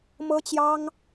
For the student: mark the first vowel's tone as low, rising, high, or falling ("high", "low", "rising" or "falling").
high